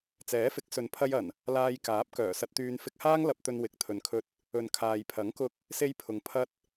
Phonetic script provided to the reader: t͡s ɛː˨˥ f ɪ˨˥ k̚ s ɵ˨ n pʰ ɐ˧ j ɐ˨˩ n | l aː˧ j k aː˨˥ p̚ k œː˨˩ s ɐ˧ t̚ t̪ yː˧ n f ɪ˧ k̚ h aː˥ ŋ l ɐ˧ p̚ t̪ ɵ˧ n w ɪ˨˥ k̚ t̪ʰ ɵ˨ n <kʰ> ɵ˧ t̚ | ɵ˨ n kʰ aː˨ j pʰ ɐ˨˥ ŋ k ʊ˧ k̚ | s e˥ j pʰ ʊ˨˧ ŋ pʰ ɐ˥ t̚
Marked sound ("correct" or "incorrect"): correct